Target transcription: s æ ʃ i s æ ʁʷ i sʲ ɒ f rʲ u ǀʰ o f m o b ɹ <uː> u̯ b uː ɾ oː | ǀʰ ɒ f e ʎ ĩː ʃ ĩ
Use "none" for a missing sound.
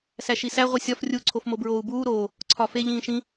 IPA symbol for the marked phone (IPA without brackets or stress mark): oː